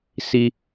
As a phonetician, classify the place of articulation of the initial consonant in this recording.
alveolar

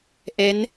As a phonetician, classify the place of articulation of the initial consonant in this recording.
glottal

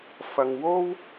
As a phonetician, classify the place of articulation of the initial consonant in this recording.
labial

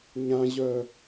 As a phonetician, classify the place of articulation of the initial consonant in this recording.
palatal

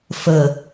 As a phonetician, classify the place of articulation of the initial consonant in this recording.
labial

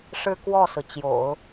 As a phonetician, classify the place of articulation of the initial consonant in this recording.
retroflex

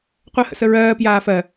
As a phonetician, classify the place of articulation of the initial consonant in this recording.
uvular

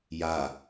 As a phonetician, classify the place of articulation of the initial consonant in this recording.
palatal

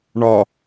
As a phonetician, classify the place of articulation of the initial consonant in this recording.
retroflex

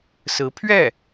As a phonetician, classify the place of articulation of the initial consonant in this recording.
alveolar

